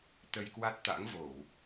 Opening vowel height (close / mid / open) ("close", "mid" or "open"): mid